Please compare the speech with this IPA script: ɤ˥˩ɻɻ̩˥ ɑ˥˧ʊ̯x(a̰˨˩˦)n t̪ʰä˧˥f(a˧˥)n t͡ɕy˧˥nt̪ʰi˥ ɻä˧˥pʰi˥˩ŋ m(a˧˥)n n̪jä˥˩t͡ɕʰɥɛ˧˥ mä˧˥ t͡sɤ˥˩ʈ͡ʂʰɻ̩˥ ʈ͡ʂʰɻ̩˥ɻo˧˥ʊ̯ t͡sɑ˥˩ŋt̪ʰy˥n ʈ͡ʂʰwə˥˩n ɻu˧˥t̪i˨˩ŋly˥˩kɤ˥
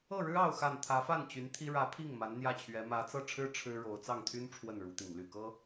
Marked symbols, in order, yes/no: no, no, yes

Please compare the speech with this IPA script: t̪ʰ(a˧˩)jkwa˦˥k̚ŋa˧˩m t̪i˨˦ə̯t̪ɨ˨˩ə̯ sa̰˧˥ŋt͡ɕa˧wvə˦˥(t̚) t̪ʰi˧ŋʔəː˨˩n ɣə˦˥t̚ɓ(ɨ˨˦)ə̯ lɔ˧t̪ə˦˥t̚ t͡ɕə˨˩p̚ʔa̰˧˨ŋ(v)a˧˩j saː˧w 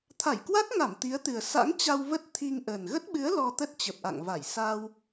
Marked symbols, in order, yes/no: yes, yes, yes, yes

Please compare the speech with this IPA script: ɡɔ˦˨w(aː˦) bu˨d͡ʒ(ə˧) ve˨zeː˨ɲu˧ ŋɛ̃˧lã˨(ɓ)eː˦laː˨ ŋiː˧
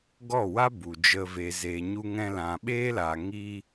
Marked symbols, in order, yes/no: no, yes, yes

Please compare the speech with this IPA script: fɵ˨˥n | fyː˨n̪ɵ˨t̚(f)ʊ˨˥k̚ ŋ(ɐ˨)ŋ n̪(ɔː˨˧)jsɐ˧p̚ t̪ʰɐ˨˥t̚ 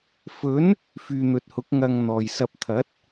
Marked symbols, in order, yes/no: no, no, no

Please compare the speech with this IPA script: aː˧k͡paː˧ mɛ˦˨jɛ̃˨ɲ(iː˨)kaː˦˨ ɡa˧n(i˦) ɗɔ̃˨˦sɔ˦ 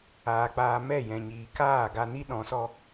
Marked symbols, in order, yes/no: yes, yes

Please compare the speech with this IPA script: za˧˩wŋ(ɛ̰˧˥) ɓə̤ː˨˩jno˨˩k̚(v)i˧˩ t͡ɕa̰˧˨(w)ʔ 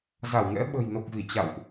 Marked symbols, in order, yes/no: yes, yes, yes

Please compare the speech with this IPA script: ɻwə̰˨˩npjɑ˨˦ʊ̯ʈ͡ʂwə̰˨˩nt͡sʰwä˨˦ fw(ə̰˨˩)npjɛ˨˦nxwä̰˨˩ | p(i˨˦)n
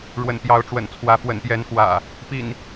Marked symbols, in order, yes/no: yes, no

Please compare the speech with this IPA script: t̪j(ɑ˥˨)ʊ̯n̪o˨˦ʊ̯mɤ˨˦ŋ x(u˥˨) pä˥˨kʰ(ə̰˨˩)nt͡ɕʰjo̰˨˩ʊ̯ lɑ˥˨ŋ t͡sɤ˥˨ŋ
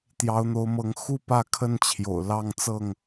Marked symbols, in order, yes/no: no, yes, no

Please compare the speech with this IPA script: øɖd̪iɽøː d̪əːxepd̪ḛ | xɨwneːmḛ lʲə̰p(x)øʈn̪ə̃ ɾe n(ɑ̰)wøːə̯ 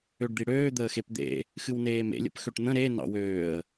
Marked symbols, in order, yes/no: yes, yes

